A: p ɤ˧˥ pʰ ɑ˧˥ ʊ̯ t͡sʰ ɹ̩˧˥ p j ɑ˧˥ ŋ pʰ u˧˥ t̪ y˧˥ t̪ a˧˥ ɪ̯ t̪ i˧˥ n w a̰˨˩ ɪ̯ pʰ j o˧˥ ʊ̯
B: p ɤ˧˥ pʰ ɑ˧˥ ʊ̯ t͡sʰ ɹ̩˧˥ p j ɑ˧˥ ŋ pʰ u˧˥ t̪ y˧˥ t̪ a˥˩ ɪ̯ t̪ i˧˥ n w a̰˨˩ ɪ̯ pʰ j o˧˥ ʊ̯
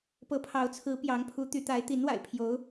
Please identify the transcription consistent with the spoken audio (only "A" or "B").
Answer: A